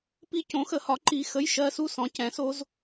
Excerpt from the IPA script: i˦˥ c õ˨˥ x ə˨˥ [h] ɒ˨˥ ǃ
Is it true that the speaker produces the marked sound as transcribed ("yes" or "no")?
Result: yes